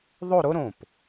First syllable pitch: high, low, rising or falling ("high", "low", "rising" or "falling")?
falling